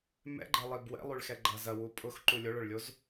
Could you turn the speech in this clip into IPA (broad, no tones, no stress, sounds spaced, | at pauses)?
m ɛ̰ ɡ͡ǃ ɛ lˠ i b w ɛ̰ lˠ y ɭ x ɛ ɡ͡ǃ ɐ z ɐ w u pʼ ʊ x ǃ u lʲ o ɭ ʊ ɭ lʲ o z